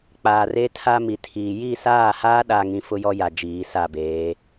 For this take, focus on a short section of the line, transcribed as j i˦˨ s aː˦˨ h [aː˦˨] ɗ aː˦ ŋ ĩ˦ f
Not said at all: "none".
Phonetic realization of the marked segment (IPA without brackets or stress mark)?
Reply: aː˦